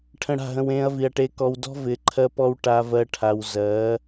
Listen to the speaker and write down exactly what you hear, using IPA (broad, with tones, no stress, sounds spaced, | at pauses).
ʈʰ ə̃˧ ɽ a̤˦˨ ɦ ə̃˧ w ẽː˧ ɐ̯ v i˨ ɐ̯ ʈ e˧ k ɔ˧ w d ɔ̤˦ v ɪː˨ ǃʰ ɜ˧ p ɔ˧ w ʈ a˦ v ɜ˦ ʈʰ a˧ w z ɜː˨˦